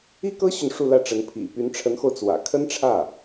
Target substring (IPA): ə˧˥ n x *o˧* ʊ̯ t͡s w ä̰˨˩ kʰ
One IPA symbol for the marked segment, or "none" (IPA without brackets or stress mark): o˧